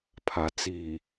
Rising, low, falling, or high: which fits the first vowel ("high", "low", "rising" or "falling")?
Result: low